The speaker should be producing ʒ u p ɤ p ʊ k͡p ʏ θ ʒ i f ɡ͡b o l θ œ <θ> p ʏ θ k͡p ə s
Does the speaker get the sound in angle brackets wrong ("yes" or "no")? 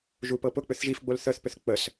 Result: no